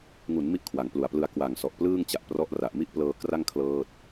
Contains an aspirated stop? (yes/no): yes